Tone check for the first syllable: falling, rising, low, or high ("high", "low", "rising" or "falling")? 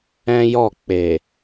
high